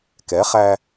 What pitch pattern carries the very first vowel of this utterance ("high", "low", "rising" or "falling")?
rising